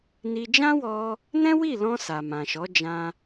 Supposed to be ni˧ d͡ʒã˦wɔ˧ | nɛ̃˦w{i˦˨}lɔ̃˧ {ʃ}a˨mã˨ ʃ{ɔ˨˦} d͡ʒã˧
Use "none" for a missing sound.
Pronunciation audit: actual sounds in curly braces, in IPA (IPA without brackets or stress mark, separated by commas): i˦˨, s, ɔ˨˦